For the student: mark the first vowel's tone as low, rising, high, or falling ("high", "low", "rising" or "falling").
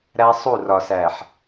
high